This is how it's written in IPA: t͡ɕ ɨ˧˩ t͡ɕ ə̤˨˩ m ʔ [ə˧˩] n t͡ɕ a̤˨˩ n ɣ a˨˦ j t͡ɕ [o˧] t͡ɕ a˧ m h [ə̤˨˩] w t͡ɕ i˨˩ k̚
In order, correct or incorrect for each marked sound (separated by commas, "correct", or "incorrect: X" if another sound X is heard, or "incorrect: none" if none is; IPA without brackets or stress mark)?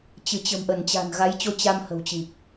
correct, correct, correct